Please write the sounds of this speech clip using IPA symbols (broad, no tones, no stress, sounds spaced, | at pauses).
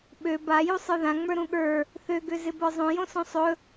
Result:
ɓ ø b a j u sˤ ə˞ ð ã ŋ͡m ə˞ ɾ ũ ɠ ə˞ | θ ø ɡ ø z ɪ b ə˞ zˤ õ j õ s õ sˤ ɵ